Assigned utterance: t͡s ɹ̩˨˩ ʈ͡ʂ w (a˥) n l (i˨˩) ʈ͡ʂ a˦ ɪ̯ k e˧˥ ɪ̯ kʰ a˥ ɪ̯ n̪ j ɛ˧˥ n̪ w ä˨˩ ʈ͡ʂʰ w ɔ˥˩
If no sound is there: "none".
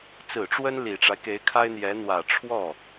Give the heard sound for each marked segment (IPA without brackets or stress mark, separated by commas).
ə˥, i˨˩